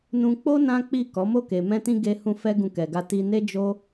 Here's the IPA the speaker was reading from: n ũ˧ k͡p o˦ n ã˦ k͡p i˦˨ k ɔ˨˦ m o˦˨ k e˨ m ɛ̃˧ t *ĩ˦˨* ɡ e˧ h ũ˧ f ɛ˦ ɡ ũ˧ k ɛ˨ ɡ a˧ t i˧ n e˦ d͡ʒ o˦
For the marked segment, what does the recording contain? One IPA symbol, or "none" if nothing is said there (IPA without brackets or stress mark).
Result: ĩ˧